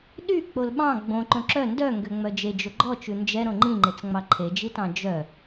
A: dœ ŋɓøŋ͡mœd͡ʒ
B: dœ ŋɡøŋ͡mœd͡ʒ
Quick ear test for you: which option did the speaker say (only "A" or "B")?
B